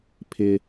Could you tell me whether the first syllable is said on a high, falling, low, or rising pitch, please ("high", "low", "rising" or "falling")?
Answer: high